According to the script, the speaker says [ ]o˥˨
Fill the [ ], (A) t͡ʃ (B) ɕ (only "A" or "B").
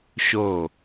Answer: B